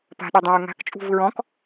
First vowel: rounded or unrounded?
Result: unrounded